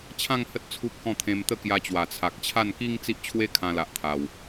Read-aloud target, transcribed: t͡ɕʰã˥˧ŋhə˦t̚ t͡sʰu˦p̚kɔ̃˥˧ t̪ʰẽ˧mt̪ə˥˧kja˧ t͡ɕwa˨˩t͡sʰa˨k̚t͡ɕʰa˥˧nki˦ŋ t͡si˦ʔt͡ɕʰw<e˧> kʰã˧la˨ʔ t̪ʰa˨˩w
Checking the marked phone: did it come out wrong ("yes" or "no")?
yes